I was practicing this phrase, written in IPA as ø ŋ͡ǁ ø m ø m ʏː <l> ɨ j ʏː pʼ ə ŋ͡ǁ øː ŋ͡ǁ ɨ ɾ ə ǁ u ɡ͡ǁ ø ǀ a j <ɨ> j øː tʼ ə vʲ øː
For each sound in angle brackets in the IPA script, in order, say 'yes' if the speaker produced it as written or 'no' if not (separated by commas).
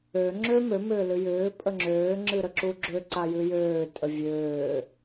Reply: yes, yes